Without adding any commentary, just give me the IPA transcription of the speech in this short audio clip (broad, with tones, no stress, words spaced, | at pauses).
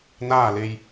naː˥˨le˧j